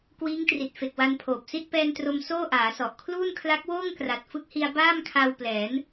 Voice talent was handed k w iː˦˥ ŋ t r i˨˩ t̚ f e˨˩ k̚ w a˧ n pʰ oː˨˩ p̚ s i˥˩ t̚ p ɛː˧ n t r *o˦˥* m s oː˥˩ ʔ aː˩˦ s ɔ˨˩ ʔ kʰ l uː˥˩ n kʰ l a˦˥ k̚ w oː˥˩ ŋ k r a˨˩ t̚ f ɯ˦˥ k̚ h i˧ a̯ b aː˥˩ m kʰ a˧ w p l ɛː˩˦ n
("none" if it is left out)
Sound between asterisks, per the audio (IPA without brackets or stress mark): o˧